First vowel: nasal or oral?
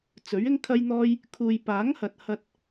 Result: oral